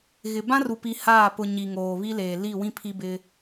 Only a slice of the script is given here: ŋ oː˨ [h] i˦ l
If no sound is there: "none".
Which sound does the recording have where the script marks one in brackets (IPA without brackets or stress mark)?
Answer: β